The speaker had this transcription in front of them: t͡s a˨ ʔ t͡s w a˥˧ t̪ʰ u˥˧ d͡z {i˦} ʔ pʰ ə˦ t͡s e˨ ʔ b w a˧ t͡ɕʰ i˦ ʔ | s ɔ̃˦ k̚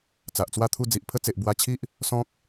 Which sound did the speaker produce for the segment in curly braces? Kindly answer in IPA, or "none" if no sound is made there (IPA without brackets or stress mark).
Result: i˨